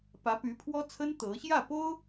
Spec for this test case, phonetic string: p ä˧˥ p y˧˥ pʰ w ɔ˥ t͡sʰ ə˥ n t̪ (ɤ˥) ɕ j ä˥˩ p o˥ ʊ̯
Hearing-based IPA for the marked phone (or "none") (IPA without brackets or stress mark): ɤ˧˥